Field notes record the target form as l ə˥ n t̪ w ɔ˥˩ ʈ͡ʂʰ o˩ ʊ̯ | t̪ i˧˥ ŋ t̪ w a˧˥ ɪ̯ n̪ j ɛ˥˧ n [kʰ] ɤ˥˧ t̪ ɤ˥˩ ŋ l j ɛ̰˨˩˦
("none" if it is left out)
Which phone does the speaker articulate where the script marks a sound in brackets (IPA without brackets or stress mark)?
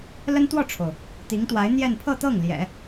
pʰ